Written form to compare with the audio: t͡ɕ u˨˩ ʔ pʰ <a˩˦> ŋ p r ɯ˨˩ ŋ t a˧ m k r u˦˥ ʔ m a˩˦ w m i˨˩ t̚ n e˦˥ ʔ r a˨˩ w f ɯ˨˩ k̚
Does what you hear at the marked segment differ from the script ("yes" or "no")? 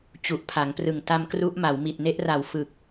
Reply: no